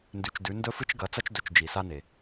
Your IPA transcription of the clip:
ndʉ˩˧t͡ʃdʉ˩˧ ndɵ˧fɨ˧t͡ʃ ɡɐ˩˧t͡sɐ˧t͡ʃ dɵ˩˧t͡ʃd͡ʒi˩ sa˧ne˩

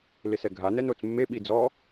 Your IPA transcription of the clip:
lɪsɛɡʱa nɛnot͡smːe ɓid͡zɔ

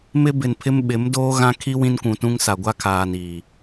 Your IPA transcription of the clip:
mɪ˦bɪ˨npʰɪ˦m ɓɪ˨˦mdoː˦ɣã˦ kʰi˦ wĩ˦nkʷũ˨tũ˦ŋsa˨ ɡʷa˦kʰaː˨niː˨

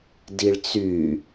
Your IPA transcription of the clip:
diɭt͡sy

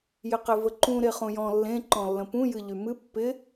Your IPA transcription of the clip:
jɪqevəǃũ ɾeχũjɔ̃ lːẽ ǃɔ̃lːə̃pũ jɨʎymɨ pːɪ

